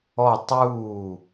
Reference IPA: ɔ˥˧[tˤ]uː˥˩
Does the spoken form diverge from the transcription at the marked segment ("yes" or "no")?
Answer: no